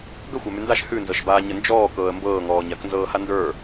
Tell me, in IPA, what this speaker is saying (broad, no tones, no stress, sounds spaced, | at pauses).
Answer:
ɡ ə xʷ a m ʉ n d a ʃ h ʉ n z ɤ ʃ b aː ɲ ə n d͡ʒ ɔː k ɤː ə̯ m b ɤː ŋ ɔː ɲ a k n z ɤː h a n d ə˞